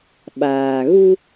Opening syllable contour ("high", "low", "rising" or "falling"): low